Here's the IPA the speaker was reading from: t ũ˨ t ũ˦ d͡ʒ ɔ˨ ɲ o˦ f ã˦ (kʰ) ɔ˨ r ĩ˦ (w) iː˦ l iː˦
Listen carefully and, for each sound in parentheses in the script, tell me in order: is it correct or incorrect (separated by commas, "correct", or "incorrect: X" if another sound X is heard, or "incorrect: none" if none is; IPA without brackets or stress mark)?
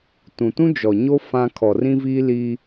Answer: correct, incorrect: v